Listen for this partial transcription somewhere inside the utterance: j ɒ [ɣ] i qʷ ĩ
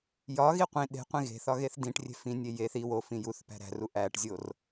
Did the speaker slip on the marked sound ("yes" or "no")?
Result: no